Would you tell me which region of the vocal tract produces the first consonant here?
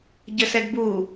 palate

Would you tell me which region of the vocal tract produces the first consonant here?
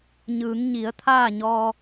palate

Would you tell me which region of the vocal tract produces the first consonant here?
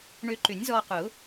retroflex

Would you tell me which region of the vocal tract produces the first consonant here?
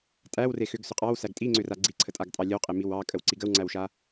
tongue tip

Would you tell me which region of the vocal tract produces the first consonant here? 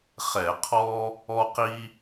uvula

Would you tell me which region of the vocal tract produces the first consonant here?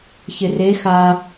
palate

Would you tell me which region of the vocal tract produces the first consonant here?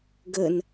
velum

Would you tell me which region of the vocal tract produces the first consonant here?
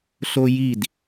tongue tip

